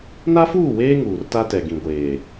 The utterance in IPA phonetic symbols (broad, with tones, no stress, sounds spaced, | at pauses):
n a˦ f uː˦˨ w eː˦ ŋ uː˨ r t a˦ t ɛ˨ ɡ ĩ˨ ɡʷ eː˨